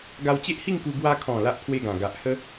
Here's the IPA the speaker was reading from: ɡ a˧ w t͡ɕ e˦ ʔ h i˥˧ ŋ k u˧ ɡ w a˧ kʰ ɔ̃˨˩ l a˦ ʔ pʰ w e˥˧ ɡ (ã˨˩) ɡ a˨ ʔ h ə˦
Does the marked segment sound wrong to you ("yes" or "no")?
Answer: no